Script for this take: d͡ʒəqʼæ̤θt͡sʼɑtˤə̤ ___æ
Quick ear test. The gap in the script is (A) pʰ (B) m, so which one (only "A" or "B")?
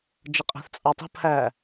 A